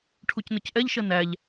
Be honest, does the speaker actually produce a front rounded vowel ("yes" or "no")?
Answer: no